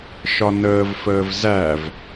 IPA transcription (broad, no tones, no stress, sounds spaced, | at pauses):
ʃ ɒ n əː v f əː v z æ v